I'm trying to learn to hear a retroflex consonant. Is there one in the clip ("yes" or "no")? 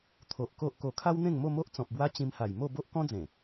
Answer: no